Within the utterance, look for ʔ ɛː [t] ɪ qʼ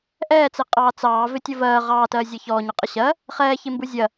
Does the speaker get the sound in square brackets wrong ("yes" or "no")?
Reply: yes